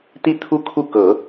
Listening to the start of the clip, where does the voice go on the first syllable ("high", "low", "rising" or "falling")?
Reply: high